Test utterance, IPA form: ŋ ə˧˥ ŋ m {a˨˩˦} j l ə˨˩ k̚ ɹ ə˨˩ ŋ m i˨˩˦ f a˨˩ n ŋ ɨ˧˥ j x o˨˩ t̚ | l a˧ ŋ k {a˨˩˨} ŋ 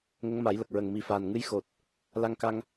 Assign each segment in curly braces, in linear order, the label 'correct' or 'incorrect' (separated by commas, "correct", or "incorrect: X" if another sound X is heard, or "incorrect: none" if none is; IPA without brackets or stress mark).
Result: correct, incorrect: a˧